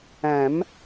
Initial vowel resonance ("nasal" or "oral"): nasal